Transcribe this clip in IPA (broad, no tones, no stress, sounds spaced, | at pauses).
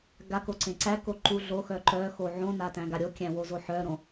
ɡ a k o ǀ ẽ ǀ æ k o ǃ u ɮ o x œ ǃ œ x o ʕ õ n a t æ̃ ɡ a ɾʲ o kʲ æ̃ w o z o ħ œ ɾ õ